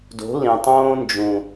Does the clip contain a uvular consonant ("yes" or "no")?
no